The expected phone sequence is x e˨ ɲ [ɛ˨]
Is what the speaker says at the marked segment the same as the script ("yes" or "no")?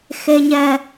yes